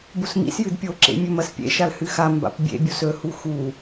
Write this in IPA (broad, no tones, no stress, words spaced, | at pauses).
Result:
busmḭsjɨd pʲoǁḛ mʲɵmɐspʲḛʃal hɨxamba̰p bʲḛbʲus ɵhu xu